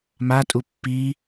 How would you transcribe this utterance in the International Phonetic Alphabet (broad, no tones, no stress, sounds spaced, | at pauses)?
m a tʼ u pː i